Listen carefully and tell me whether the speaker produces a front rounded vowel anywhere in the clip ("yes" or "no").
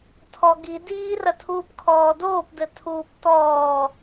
no